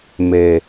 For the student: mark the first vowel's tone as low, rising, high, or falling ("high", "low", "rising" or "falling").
low